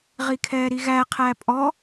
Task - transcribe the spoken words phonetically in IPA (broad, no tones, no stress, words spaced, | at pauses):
ʁikʰɛːɾiɣæ qʰæpʼɔ